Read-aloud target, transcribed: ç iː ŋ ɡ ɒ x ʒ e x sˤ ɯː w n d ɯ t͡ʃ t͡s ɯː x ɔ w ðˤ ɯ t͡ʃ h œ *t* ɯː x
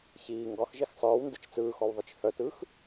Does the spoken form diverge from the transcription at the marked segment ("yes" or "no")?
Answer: no